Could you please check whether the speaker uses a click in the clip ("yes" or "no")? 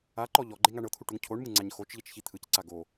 yes